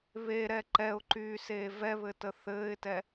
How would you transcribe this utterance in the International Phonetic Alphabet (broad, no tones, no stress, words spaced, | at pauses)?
βeɾɛ ǃɛʊ̯ǃyːseː vɛβɘtə θɘːɪ̯tɛ